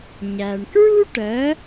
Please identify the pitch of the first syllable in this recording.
low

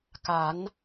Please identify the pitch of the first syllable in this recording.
rising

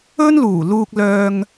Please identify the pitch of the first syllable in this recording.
high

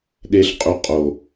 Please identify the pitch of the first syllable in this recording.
high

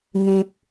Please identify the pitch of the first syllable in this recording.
low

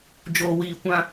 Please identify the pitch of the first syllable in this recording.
low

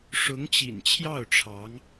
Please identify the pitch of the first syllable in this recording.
rising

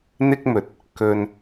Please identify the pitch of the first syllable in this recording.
high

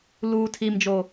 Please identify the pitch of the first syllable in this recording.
low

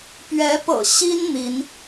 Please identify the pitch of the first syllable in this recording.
rising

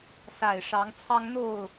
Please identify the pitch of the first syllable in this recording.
falling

